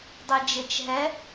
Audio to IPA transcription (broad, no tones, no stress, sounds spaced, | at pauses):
dˤ ɛ d͡ʒ e t͡ʃ ɦ ɛ